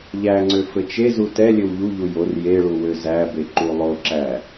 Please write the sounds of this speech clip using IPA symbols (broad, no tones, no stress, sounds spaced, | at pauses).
ʎ æ ŋ͡ǀ ø f ɘ t͡ʃ e z u t ɛ lʲ ɘ w ʎ u ʎ u j o r j e ɭ u w ø z æ b e ǃ u lˠ o ǁ æ